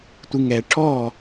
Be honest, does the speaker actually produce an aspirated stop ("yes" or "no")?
yes